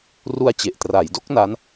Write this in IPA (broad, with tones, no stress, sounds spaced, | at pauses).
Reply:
r u˧ a̯ t͡ɕ e˨˩ ʔ t r a˩˦ j d o˦˥ k̚ n a˦˥ n